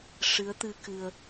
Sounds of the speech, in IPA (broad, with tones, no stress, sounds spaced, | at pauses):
ʂ ɨ˧˥ ə̯ t̪ ɨ˧ k ɨ˧ ə̯